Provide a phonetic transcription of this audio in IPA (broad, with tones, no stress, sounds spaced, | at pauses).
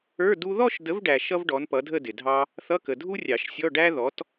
ə˞˧˥˧ d u˥ ð ɔ˥˧ ʃ d ə˨˥ v ɖ æ˨ ʃ ʌ˥ v ɖ ɔ˨˥ n p ʌ˨˥ dʱ ə˥˧ d ɪ˨ dʱ ɑ˥ | θ ʌ˧˥˧ k ə˨ dʱ u˥ rʲ ɑ˨˩˦ ʃ sʲ ɔ˧˥˧ ɖ æ˥ ð ɔ˨˥ t